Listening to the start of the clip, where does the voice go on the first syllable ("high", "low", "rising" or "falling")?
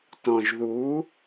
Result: low